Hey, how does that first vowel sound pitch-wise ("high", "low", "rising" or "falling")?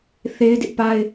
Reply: high